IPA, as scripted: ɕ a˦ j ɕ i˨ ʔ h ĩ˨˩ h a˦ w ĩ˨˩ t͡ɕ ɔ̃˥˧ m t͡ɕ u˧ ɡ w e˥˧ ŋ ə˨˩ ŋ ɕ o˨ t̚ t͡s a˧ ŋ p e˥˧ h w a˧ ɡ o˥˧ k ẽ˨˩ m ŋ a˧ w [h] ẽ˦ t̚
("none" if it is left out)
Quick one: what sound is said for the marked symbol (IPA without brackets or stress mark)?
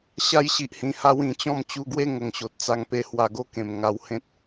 h